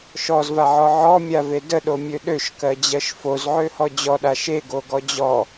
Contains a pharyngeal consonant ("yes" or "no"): yes